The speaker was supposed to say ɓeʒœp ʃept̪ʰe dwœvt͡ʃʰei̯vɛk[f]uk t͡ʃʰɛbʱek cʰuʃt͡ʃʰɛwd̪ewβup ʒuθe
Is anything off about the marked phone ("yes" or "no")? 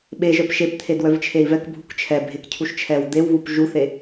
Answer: yes